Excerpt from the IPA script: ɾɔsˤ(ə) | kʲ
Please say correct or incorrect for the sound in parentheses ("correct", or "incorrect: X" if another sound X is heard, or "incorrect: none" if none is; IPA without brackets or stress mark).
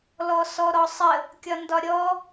correct